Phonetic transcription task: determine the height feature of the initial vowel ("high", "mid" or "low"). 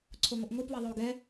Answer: mid